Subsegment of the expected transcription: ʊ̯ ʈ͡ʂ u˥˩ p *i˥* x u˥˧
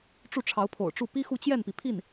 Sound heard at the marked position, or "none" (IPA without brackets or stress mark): i˥